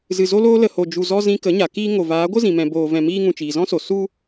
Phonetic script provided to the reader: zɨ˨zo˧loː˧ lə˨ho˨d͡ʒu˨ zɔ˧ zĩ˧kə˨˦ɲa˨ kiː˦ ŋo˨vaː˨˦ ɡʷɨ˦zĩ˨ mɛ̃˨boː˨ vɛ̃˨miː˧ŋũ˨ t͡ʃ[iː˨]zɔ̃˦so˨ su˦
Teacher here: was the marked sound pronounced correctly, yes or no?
yes